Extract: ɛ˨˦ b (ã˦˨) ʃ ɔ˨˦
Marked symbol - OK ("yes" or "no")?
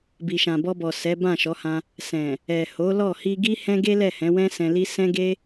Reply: yes